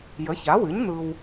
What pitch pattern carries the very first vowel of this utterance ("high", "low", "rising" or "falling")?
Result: rising